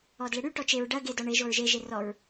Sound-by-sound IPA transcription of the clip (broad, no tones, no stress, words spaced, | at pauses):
ɔdleɽy ʈɔt͡ʃeɹ ɖɐɡe dɔɳeʒ oɹʒeʒe rɔɹ